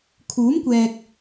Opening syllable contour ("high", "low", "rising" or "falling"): rising